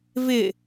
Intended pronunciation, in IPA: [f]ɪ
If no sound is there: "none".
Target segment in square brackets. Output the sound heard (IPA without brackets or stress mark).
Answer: v